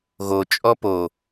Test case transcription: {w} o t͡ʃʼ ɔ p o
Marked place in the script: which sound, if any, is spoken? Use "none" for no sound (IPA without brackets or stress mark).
ɣ